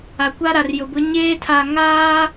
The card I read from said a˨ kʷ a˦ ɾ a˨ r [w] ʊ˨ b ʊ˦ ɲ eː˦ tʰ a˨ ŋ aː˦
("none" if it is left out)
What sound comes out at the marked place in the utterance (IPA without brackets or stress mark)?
j